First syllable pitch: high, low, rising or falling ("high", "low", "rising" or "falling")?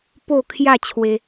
falling